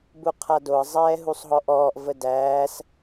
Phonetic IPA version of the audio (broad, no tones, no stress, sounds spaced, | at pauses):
b u qʰ a d o ə̯ zˤ ɛː ɦ u sˤ ɦ ɔ ʔ ɔː ʔ v ə d æː s